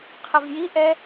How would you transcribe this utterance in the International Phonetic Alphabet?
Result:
qʰ ə v j i ʔ ɛ

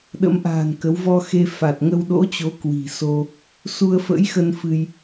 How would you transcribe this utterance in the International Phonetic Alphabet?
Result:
ɗ ə̰˧˥ m ʔ a̤ː˨˩ n k ə˨˦ w v ɔ˧ x e˧ f a˨˩ t̚ ŋ ə˧ w ɗ o̰˧˥ t͡ɕ o˨˦ k w i̤˨˩ s o˧ | s u˧ ə̯ f ə̰˧˥ j x ə˧ n f ɨ˧ j

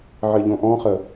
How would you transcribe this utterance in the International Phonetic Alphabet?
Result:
ʕ ɪ ʎ õ ʔ ɔ̃ χ ə

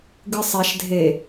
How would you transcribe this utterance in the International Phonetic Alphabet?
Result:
ɡ ɨ sˤ ɛ ʃ dʱ e

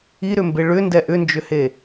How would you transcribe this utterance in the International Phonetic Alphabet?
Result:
i ɾ ʏ m b e ɭ ʏ n d ɛ ʔ ʏ n d͡ʒ ʏ h e

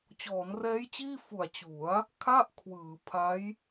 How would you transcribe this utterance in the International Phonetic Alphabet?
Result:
t͡ɕ ɔː˩˦ n r ɛː˦˥ j t͡ɕ iː˥˩ f u˨˩ a̯ t͡ɕ u˩˦ a̯ | kʰ a˥˩ ʔ kʰ w ɯː˩˦ pʰ a˦˥ j

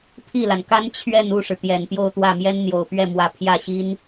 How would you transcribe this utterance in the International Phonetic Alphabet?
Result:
pʰ i˥˩ l a˩ n k a˥ n t͡ɕʰ ɥ ɛ˥˧ n u˥˩ ʂ ɻ̩˩ t̪ j ɛ˨˩ n p j o˥˧ ʊ̯ t̪ w ä˥˩ m j ɛ˥ n n̪ j o˨˩ ʊ̯ p ɥ ɛ˥˩ m w ä˧˥ pʰ j ä˥˩ ɕ i˥ n

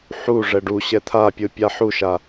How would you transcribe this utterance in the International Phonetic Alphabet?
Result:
ħ u ʐ ɛ ɖ u ɕ ɛ t̪ʰ a pʲ ɯ pʲ a ħ u ʃ a

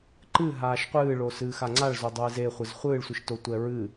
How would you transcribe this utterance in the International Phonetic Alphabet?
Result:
ǃ ɨ ɦ aː ʃ qʷ ɨː ɭ o s ɨː x a ŋ͡ǀ a ɭ z o dˤ ɨː z e χʷ ɨ z χʷ ɨː ɭ sʷ ɨ ʃ t o tʷ ɛ ɹ ɨ

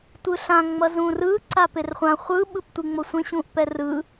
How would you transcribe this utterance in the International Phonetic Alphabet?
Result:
tʷ ɯ ɬ ã ŋ͡m ʌ z ũ r ɯ ǀ a p e r χʷ ã χʷ ɯ ɓ ɯ p tʷ i ŋ͡m o sʷ ẽ ɕ ũ ʔ p ɛ r ɯ

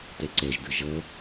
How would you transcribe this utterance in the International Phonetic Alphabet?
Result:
t ɛ ǀ ɛ ʒ d ɯ ʒ ʌ

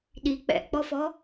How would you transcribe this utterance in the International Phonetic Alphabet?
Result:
ɗ i k͡p ɛ̰ ʔ k͡p ɔ f ɔ

